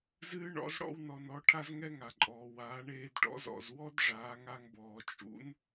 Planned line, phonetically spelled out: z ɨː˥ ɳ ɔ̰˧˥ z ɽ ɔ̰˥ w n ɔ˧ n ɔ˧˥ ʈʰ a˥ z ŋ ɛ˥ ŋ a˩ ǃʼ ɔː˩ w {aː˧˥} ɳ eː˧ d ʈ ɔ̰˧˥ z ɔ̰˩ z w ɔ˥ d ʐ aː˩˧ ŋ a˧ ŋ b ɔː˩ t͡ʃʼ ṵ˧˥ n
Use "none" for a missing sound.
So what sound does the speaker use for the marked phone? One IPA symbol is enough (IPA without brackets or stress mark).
aː˩˧